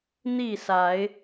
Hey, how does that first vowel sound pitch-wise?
falling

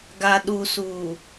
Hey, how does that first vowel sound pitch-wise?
low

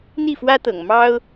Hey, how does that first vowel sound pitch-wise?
falling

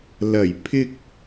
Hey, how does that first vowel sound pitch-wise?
low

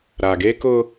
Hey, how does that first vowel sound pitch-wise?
low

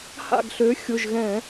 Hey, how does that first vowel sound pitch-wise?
falling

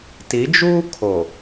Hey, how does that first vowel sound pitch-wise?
rising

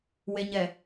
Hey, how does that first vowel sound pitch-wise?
low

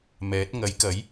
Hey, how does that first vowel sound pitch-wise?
rising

